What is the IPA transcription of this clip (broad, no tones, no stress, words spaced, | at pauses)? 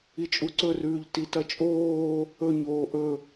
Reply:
it͡ʃʼuǀɵrʉːʎ titɐt͡ʃʼoː | ɵɲoː ʔɵ